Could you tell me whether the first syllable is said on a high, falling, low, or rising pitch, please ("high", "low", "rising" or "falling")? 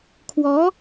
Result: rising